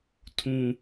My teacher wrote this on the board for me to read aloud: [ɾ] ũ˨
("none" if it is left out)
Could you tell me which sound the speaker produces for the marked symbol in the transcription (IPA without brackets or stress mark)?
tʰ